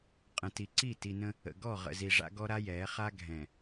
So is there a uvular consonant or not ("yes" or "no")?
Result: yes